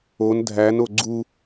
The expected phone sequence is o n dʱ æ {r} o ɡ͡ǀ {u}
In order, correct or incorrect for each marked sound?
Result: incorrect: n, correct

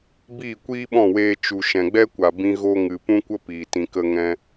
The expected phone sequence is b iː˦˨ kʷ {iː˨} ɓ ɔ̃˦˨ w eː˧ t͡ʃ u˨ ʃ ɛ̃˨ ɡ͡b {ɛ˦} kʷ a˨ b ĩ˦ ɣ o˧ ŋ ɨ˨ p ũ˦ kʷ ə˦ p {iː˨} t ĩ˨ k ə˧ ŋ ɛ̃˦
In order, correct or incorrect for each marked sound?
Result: incorrect: iː˦, correct, correct

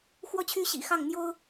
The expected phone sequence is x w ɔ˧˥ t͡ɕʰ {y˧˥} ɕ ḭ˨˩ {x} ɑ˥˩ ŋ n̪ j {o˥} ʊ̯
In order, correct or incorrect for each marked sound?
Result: correct, correct, correct

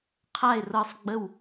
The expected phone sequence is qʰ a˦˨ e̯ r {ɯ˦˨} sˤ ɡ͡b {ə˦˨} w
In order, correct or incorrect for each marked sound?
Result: incorrect: ɤ˦˨, correct

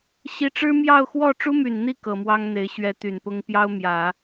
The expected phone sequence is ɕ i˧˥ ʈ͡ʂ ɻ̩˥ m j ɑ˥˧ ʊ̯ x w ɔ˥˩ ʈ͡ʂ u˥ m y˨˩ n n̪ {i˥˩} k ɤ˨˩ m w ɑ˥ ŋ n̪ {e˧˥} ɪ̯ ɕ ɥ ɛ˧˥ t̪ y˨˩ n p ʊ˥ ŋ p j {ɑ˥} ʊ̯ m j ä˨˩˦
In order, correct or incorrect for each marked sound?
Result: correct, correct, correct

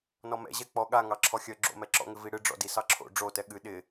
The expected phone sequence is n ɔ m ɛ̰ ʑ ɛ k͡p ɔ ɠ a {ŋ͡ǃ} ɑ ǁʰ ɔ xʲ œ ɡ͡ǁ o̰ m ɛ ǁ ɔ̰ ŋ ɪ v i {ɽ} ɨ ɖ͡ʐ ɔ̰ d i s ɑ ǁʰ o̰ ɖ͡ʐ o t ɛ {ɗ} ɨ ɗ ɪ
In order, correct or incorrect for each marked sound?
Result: incorrect: ŋ, correct, incorrect: ɠ

